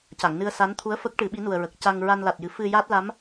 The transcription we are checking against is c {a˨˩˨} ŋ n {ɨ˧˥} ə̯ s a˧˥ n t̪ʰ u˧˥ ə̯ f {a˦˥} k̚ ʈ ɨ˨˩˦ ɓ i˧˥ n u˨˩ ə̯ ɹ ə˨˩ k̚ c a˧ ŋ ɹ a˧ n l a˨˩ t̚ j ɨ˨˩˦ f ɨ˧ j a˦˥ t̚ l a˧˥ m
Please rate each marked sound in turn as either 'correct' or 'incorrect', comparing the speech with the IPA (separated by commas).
correct, incorrect, incorrect